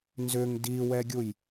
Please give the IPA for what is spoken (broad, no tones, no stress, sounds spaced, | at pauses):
n z ʏ ŋ d i w ɛ ɡʲ u j